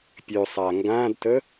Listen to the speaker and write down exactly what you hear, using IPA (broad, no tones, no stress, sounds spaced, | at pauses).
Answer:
pʲ ø sˤ a ŋ ɡ ã d t ə